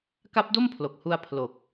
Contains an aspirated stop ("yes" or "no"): yes